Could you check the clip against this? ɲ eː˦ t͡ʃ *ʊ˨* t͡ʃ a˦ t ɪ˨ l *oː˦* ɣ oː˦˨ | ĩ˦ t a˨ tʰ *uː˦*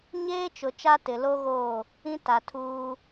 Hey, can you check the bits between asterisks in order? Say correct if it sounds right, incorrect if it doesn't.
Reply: correct, incorrect, correct

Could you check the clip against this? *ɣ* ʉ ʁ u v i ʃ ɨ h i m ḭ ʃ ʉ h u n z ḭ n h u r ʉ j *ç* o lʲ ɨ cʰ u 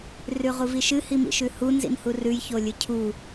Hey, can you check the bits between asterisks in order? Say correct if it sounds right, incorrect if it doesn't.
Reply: incorrect, correct

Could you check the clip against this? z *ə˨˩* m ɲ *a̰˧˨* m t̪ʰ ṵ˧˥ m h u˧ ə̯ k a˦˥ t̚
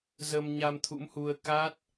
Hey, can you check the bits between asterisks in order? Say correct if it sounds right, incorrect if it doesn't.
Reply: incorrect, incorrect

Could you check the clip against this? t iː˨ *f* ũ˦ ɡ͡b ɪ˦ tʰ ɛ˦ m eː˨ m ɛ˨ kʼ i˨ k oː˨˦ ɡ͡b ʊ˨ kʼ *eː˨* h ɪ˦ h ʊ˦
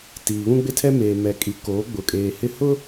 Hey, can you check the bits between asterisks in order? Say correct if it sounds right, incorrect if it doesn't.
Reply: incorrect, correct

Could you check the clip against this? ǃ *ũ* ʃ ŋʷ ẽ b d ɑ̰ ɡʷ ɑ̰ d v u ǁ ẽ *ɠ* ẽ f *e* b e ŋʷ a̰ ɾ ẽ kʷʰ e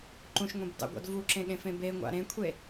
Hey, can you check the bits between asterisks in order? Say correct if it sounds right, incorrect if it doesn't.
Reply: correct, correct, incorrect

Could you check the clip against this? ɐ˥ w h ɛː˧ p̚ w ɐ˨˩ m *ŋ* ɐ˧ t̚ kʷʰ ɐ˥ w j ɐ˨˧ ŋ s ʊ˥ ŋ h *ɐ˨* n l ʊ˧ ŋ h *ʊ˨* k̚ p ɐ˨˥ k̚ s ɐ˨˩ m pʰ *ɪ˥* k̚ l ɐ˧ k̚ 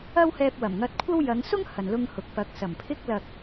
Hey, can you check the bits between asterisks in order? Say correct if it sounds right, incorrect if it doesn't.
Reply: correct, correct, correct, correct

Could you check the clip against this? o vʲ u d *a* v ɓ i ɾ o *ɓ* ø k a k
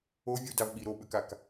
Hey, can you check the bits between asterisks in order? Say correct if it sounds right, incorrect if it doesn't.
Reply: correct, correct

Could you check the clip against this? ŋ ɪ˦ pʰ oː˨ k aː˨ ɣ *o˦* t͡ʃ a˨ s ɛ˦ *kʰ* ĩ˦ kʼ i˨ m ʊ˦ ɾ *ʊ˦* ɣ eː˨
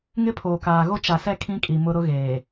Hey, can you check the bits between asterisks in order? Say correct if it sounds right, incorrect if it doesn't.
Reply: correct, correct, correct

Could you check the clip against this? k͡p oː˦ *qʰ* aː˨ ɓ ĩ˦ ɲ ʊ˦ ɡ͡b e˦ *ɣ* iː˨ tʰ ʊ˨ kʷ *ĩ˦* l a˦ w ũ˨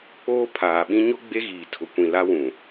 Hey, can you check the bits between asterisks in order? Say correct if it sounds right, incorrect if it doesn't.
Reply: incorrect, correct, incorrect

